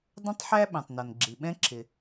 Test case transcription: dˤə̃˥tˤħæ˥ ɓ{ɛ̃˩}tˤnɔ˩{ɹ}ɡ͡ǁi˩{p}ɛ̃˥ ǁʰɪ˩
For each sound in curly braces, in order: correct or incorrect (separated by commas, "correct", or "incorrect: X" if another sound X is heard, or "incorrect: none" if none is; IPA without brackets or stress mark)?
correct, incorrect: n, incorrect: ɓ